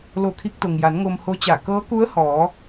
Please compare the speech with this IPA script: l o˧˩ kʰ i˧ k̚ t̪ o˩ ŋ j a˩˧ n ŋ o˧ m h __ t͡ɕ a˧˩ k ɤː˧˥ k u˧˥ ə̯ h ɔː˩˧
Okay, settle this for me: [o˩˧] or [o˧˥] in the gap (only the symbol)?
o˧˥